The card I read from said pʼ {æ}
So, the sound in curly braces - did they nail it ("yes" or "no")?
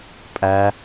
yes